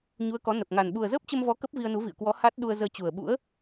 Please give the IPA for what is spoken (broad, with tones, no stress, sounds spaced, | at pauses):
ɲ u˨˦ ə̯ k ɔ˨˦ n ə˨˩ p̚ ŋ a˨˩ n ɓ u˨˩ ə̯ z əː˦˥ p̚ t͡ɕ ə˧ m v ɔ˨˦ k ə˦˥ p̚ v i˧ ə̯ n u˨˦ v ḭ˧˨ ə̯ k w ɔ˨˦ h a˦˥ t̚ ɗ u˧ ə̯ z əː˧ t͡ɕ u˨˩ ə̯ ɓ ṵ˧˥ ə̯